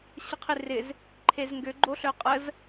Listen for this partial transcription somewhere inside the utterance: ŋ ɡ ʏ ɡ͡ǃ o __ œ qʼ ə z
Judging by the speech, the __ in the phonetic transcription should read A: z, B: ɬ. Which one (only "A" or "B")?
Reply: B